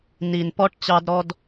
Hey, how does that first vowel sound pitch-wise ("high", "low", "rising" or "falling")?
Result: low